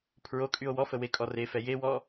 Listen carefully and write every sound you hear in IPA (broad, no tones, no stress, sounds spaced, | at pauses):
pʰ ɹ o kʼ y o̯ w ɔ f ə w e kʼ ɔ r e f ɛ j e w ɔ